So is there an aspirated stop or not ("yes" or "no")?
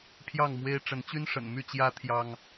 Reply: yes